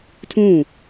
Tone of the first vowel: falling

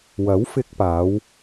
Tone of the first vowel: rising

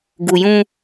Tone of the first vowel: low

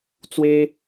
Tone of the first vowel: high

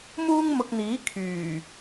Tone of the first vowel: high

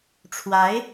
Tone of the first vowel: rising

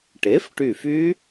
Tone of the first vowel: rising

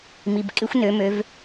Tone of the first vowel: low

